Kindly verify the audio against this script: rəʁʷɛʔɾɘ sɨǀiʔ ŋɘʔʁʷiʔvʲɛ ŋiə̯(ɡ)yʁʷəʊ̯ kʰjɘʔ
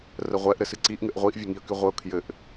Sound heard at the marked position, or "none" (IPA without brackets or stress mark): k